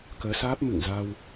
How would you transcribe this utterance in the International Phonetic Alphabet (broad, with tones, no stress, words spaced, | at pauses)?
kəː˨˦saː˦˥p̚ mɨ̰˧˨ŋza˧w